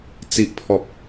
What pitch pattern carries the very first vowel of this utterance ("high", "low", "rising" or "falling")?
low